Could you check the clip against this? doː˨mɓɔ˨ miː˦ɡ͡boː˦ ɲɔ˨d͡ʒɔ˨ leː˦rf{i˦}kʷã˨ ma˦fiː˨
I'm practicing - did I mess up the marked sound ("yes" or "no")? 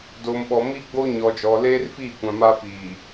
yes